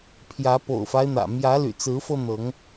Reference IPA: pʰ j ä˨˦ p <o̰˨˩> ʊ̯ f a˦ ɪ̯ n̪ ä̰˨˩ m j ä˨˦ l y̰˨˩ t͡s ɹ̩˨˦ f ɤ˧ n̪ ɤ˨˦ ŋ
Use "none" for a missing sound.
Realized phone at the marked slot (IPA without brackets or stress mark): o̰˨˩